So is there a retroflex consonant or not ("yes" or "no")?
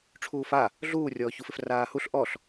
yes